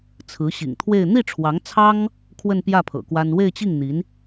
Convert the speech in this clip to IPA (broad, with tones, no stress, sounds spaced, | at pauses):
t͡sʰ ɹ̩˧˥ ɕ ḭ˨˩ ŋ t̪ʰ w e˥˧ ɪ̯ n̪ i˥˩ ʈ͡ʂʰ w ɑ˧˥ ŋ t͡sʰ ɑ˥ ŋ | kʰ w ə˥˧ n p j ä˥˩ pʰ ɤ̰˨˩ k w a˥ n w e˥˧ ɪ̯ t͡ɕ i˥˩ ŋ n̪ i˧˥ n